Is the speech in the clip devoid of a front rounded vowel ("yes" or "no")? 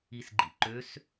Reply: no